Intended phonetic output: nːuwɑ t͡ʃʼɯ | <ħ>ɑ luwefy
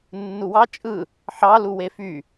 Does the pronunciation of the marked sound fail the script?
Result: no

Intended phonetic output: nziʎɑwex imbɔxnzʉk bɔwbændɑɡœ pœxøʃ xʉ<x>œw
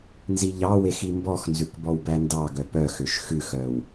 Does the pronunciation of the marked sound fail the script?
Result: no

